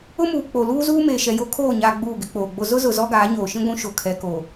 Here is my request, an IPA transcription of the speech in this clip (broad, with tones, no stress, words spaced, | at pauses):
ʊ˦muː˨ k͡po˨ luː˦zuː˦ meː˨ʃɛ˨jo˦ kʰoː˦˨ɲaː˨ ɡ͡buː˦˨ɡɪ˦k͡poː˨ɡ͡bo˦ zʊ˦zʊ˨ zɔ˦ɡaː˨˦ɲoː˨ʃĩ˦ ɡʷũ˦ ʃo˨kʰɛ˨ko˨